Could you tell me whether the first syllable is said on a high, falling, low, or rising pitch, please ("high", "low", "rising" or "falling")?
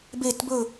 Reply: falling